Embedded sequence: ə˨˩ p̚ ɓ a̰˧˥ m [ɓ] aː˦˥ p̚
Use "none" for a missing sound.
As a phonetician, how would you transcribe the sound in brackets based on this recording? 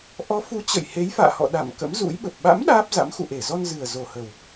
ɗ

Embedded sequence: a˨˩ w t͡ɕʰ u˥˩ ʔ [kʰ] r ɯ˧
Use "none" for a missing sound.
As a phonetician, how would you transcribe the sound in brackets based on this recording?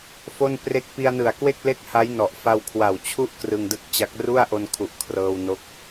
k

